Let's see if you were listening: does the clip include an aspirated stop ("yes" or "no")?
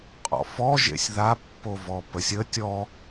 no